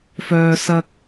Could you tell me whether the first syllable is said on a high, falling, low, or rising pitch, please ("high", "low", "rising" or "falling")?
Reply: high